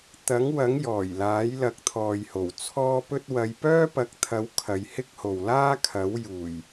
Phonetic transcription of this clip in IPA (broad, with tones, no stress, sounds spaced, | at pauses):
t̪ ɐ˨˥ ŋ w ɐ˨˥ ŋ j ɔː˨˩ j l aː˨˥ j l ɐ˨˥ k̚ t̪ʰ ɔː˨ j h o˨˩ w t͡sʰ ɔː˥ p ɵ˥ t̚ w ɐ˨˧ j p œː˥ p ɐ˨˥ k̚ t̪ʰ ɐ˨˥ w kʰ ɐ˨˧ j h ɪ˥ k̚ h o˨ w l aː˥ kʰ ɐ˨˥ w j uː˨˩ j